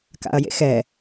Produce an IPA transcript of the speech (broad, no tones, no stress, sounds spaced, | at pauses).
k a̰ ɐ̯ j ḛ x ɛ